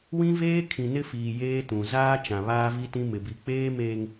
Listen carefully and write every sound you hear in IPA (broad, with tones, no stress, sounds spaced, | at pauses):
w ĩ˦ v eː˦ kʰ ĩ˨ n ɪ˦ f iː˨ j eː˦ t ũ˨ z aː˦ t͡ʃ ã˨ β aː˦ v i˦ t ĩ˦ m ɪ˨ b i˨ k͡p eː˦ m eː˨ ŋ